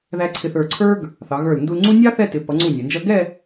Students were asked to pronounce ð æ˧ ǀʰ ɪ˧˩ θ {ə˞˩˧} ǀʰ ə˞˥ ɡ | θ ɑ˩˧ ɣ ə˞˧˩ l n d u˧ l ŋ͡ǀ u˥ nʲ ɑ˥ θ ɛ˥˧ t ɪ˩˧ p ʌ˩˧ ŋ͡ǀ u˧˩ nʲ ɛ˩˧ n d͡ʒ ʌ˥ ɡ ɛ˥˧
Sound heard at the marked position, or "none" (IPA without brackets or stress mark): ə˞˧˩